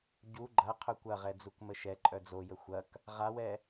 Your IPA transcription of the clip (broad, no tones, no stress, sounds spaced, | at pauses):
ɟ u ɡ͡ǃ ɐ qʰ œ kʷ ɐ ʁ ɛ d͡z u k m ə ʃ ɛ ǃʼ œ d͡z o j ə xʷ ɐ k | ʁ a w ɛ